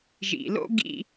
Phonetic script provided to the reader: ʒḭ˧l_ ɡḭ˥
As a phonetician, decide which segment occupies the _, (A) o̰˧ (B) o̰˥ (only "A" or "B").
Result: B